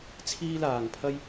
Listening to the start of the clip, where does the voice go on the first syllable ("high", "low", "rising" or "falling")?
high